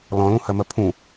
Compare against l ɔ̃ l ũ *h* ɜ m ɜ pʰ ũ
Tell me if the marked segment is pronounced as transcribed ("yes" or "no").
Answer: yes